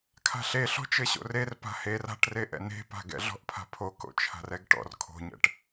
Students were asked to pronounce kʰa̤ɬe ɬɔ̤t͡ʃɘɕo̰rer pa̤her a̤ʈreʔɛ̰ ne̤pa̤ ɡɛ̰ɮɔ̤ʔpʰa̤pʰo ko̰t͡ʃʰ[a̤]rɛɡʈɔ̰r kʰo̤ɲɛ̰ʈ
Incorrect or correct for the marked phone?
correct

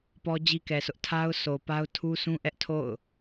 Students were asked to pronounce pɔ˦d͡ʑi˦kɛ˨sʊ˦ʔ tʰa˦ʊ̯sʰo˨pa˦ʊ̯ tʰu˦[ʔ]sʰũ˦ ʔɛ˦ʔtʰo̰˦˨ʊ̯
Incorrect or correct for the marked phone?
incorrect: none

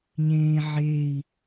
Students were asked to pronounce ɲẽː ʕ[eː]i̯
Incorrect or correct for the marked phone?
incorrect: e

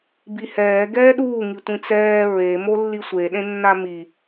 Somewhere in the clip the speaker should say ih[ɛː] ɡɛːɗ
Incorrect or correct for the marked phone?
correct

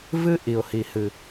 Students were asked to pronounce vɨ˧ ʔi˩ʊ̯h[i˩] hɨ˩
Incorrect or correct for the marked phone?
correct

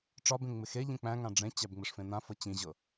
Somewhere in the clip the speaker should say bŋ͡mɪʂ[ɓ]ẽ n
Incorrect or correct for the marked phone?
incorrect: f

